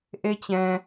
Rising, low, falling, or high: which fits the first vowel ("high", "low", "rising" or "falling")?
high